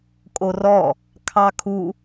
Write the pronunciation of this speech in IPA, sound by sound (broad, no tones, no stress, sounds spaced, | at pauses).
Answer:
kʼ o r ɔ | kʰ ɑ kʰ u